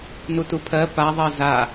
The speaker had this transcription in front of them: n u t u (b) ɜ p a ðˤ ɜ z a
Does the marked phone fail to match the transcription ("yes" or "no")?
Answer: yes